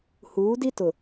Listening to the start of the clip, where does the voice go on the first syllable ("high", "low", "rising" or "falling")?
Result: rising